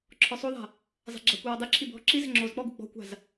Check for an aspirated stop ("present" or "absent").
present